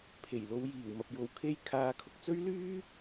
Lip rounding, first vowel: unrounded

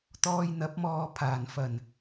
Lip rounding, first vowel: rounded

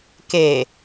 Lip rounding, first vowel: unrounded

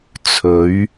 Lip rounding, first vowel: rounded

